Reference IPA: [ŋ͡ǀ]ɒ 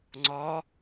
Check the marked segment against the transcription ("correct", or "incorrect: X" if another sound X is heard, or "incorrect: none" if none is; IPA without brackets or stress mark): correct